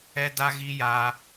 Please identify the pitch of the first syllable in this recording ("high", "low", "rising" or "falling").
high